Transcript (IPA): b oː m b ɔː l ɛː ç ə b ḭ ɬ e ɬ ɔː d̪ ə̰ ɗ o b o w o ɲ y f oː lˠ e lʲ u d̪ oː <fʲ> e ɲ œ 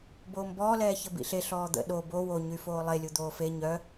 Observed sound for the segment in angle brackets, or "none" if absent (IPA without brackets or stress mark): f